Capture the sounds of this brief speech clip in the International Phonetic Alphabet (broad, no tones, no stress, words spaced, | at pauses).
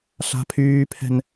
ɬa̤pʰyːpʰɛ̤n